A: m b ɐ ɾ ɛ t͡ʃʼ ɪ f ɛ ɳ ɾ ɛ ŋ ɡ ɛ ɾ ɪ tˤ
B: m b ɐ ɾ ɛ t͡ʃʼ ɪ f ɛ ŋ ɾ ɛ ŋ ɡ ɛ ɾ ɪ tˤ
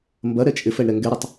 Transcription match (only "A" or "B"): A